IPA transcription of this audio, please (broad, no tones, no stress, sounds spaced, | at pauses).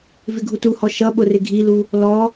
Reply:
v ɪ ɡʱ u t u h ɔ ʃ ʌ ɓ ʊ r ɪ ɡʱ i l u | l ɔ